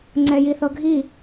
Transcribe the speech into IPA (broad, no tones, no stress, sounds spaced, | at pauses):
ŋ͡ǀ ɛ j i θ ɤ ɡʱ i